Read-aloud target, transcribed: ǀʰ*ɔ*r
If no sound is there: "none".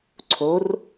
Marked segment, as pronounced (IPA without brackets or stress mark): o